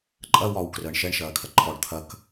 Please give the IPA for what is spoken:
ǃʼ ɐ w ɒ w k r əː ɳ ʃ ɛ ɳ ʃ ɐː kʰ ɐ ǃʰ ɔ ɖ t̪ʰ ɐ k

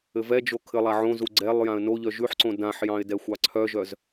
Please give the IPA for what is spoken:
ɘ v ɛ d͡ʒ o kʰ ɘ lˠ a ʕ õ z u ɡ͡ǀ ɛ lˠ j ã ə̯ n o ʎ œ ʒ ʉ ħ ǀ õ d ã ħ j ɑ̃ ɪ̯ d ɛ xʷ ɑ ǀʰ œ ʒ œ z

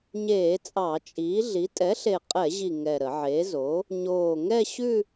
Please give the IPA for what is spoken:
ɲ eː˧˩˧ t͡sʼ ɑ˧˩˧ t͡ʃʼ iː˩˥ ɮ i˩˥ tʼ ɛ˩˥ ɬ e˨˩ qʼ ɛ˧˩˧ ʑ i˨˩ ŋ ɛ˨˩ ɾ ə˧˩˧ ʕ e˩˥ z o˩˥ | ɲ oː˨˩ ŋ ɛ˥˧ ɕ ʉ˥˧

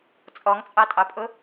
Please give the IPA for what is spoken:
t͡sʼ ɔ ŋ t͡sʼ ɑ tʼ ɑ pʼ ʊ

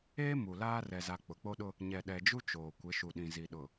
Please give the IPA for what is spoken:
eː˦ m u˨ l aː˦ r ɛ˨ z a˨ k͡p ʊ˨ k͡p o˦ ɗ ʊ˦ | ɲ ɛ˨ ɗ ɛ˨ d͡ʒ u˦ t͡ʃ oː˨ kʷ ɪ˨˦ ʃ u˨ ɗ ĩ˨ z i˨ ɗ ʊ˨

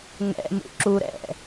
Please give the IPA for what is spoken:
ŋ ɛ̰ m ṵ ǁ u ɾ ɛ̰

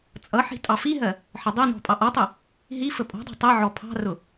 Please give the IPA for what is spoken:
t͡sʼ ʌ ħ i̤ tʼ ɑ f i ɦ ɜ | ħ ə dˤ i n ɔ̤ pʼ ɑ ʔ ɔ tˤ i | ɦ i f ə pʼ ɔ̤ dˤ ɑ̤ tˤ i ʕ ɔ pʰ ɑ̤ r ʊ

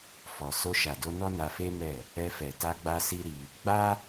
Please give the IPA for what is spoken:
f ɔ˨ s o˧ ʃ a˨ d o˧ n ɔ˦ n a˧ f e˦ m ɛ˦˨ | ɛ˧ f ɛ˨ t a˧ ɡ͡b a˧ s i˦ ɾ i˧ | ɡ͡b a˦

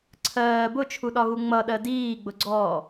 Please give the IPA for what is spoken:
ǀʰ ɜː b ʊ t͡ʃʰ u ɗ ɒ ɣ u ŋ͡m ʌ ɗ ɜ d iː ɡ͡b ʊ ɡ͡ǀ ɔː

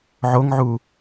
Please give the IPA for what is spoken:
ʕ o ŋ ʕ u

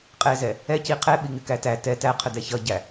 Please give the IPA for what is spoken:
qʼ ɛ z ɛ | ɛ c i qʰ ɛ ɓ i ŋ ɪ k æ t æ t ɛ t æ qʰ ə d ɛ ç ʌ ɟ æ

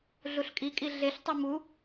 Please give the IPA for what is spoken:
ɮ u ɬ kʼ i kʼ i ɮ e ɬ tˤ u m u

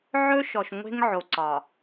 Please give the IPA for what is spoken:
ʕ ɵ˦ ʃ ɔ˨ ʃ ŋʷ e̤˦ ŋ ʕ o˨ ǀ ɒ˨

